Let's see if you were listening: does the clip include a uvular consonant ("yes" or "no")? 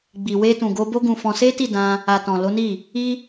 no